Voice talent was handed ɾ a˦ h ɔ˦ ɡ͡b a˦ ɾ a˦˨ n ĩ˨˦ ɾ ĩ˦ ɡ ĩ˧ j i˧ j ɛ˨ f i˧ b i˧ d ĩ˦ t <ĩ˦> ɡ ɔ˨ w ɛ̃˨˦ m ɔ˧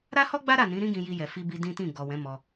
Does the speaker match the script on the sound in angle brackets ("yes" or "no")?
no